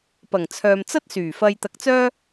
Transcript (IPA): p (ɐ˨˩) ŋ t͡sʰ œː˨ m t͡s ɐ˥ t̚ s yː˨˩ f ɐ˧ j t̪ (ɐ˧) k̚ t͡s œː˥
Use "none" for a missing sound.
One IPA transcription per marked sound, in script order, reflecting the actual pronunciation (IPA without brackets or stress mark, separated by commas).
ɐ˨˩, ɐ˧